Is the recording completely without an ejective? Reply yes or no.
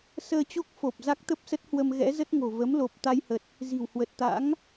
yes